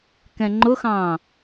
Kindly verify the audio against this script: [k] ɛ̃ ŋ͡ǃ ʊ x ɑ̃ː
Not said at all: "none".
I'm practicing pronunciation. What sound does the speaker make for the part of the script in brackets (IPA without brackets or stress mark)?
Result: k